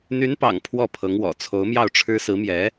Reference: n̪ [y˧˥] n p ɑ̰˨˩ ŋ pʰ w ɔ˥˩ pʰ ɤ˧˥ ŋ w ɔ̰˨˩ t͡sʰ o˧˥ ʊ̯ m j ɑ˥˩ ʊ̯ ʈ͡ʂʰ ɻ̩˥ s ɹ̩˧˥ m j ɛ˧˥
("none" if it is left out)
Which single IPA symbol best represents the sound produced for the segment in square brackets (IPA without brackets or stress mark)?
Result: y˧˥